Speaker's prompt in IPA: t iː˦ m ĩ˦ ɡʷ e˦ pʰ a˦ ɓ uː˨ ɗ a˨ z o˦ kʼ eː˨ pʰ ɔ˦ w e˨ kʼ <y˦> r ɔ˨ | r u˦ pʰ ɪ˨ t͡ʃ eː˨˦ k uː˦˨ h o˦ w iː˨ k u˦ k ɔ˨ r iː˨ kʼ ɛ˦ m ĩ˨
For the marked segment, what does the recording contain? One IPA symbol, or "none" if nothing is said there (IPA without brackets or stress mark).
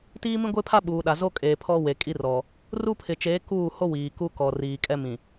i˦